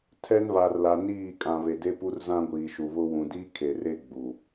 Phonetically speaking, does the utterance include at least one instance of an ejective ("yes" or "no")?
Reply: yes